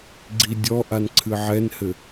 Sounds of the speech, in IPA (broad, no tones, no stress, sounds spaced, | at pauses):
ɡ͡ǀ i dʲ ɔ ʔ a n ǀʰ ɨ ʕ ɛ n h ɘ